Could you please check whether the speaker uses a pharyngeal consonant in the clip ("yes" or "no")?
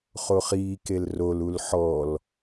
yes